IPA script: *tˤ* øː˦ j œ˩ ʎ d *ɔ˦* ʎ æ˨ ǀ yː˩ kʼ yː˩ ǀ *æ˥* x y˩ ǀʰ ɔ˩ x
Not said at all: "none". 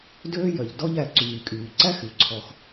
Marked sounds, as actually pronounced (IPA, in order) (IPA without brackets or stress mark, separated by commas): d, ɔ˦, æ˥